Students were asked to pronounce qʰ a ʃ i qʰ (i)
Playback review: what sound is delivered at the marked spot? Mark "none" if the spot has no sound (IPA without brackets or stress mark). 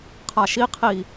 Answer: i